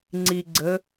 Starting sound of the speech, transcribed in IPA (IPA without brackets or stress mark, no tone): ŋ͡ǀ